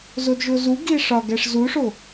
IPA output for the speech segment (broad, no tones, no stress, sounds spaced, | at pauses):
z o d ʒ o z u ɡ i e̯ ʂ ɒ ɡ æ ʂ z u ʂ o